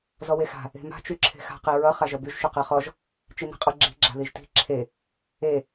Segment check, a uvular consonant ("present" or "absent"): present